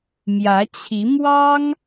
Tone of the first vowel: rising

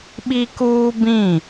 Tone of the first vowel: high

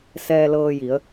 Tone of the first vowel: low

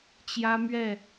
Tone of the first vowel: high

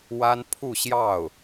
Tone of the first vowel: high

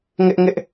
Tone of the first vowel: high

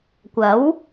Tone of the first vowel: rising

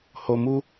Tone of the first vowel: low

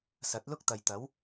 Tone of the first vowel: rising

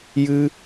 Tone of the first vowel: high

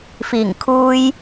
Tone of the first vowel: low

